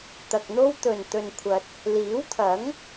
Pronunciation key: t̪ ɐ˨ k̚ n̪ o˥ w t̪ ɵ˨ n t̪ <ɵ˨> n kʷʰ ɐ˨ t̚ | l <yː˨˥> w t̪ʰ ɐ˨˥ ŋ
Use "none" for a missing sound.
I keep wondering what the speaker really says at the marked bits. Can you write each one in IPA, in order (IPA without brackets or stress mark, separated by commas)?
ɵ˨, iː˨˥